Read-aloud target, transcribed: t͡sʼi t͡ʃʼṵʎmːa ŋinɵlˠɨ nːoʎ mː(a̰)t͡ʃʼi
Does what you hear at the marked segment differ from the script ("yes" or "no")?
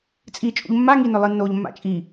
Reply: no